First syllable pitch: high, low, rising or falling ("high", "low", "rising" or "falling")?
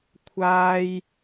high